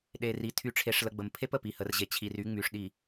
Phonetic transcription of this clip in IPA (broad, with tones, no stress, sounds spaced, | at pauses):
ɗ e˨ r i˨ tʰ y˨ ʈ͡ʂʰ e˨ ʂ l ə˨ ɡ͡b ə˨ m pʰ e˦ p ə˨ p i˨ h ə˨ r ʑ e˨ t͡ɕʰ i˨ r y˨˦ ŋ͡m y˨ ʂ ɗ i˨